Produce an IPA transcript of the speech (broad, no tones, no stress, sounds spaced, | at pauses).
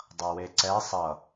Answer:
dˤ ʌ w e ǀ ɛ sˤ ʌ